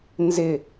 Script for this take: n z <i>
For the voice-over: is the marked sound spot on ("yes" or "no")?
no